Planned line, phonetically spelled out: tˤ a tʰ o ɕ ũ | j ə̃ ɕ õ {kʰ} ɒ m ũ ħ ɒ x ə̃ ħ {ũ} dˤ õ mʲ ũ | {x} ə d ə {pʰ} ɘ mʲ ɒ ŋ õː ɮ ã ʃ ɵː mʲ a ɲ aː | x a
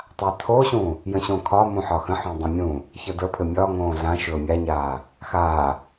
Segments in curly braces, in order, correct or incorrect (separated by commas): correct, correct, incorrect, correct